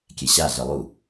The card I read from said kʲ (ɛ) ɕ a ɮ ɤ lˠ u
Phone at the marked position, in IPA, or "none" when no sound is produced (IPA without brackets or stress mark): ɛ